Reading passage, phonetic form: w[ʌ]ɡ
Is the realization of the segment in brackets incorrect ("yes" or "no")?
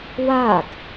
yes